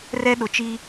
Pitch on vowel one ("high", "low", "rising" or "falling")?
high